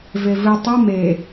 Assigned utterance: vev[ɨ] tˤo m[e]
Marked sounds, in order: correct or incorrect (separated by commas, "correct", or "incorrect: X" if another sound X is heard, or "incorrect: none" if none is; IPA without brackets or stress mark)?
correct, correct